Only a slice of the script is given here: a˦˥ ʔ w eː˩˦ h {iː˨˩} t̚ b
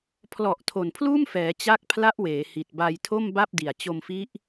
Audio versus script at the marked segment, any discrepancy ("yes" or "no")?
yes